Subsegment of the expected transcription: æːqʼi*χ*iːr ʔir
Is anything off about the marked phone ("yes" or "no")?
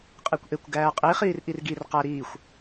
no